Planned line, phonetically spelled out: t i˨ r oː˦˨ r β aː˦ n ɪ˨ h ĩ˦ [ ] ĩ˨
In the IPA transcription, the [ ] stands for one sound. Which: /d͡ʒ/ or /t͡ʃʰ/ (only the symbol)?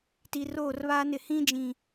d͡ʒ